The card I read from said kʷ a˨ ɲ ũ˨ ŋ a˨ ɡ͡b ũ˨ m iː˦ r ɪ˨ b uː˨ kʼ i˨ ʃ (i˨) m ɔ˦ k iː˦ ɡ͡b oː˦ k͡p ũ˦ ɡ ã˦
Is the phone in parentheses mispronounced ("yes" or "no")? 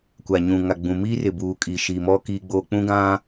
no